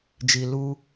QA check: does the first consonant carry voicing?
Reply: yes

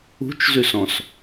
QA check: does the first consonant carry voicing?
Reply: no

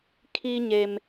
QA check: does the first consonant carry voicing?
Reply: no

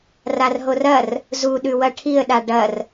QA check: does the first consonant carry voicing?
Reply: yes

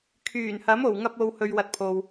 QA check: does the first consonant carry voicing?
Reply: no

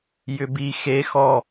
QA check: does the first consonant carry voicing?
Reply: yes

